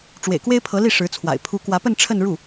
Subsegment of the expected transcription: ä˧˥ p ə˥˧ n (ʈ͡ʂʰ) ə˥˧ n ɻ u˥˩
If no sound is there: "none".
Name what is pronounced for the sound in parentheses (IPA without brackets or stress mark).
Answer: ʈ͡ʂʰ